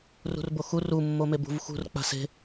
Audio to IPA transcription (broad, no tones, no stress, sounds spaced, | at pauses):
r ṳ r b o x u r u mː o m e b ṳ v x ṳ r k͡p a̤ s e̤